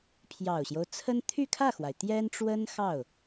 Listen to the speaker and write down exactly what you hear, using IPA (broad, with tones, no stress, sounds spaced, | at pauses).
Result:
pʰ j ɑ˨˩ ʊ̯ ɕ j o˦ ʊ̯ t͡sʰ ə˥ n t̪ʰ y˥˧ kʰ ä˥˩ x w a˩ ɪ̯ t̪ j ɛ˥ n ʈ͡ʂ w ə˥ n x ɑ˥˩ ʊ̯